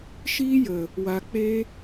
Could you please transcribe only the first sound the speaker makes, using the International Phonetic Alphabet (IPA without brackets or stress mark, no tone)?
ʃ